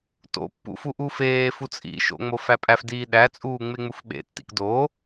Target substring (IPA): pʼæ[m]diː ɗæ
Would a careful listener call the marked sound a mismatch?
yes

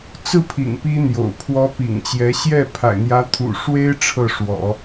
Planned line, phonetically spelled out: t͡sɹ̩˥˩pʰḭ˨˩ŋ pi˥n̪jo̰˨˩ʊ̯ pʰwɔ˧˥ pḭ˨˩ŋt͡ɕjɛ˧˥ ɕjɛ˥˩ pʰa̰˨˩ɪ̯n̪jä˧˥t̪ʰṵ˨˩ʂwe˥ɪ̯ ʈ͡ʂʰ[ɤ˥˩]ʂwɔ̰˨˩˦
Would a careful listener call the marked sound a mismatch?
no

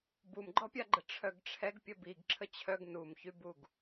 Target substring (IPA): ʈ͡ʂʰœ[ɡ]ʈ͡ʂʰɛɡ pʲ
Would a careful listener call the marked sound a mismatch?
no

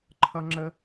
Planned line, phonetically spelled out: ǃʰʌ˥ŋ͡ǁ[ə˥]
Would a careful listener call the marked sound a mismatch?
no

